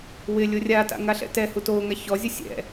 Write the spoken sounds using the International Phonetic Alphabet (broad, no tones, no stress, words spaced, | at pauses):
wɪlʲʊ rʲata̰ ŋaɬɛ̰tɛhu toŋa çɔzʲu sʲɛ̰